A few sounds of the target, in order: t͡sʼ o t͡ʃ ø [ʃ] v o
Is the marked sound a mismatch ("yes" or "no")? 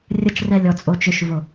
no